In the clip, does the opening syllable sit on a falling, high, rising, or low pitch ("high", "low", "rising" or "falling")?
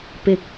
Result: low